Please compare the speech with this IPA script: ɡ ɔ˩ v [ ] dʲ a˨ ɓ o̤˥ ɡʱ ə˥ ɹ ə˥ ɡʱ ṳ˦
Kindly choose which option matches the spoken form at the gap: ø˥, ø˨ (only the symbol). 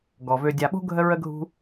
ø˨